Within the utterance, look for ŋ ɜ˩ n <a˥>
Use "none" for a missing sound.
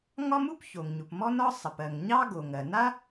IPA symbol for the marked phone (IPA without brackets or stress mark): a˥